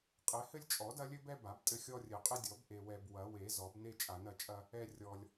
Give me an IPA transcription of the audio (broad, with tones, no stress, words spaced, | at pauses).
qʼɛ˨˩˦hɘ˦lʲ t͡ʃʼɔ˨˩˦dɐ˦lʲɘ˦bɛ˦ ba˨˩˦btʼɘ˦xʲɔ˦rʲɘ˨˩˦ qʼɘ˦dʲɔ˨˩˦b ʔe˨wɛ˨b wɐ˨˩˦we˨˩˦ zɔ˨˩˦bne˦ t͡ʃʼa˨˩˦nɐ˨˩˦t͡ʃʼɐ˦ | ɛ˦rʲɔ˨lʲ